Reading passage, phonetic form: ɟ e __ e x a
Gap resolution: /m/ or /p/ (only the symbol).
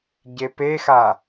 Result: p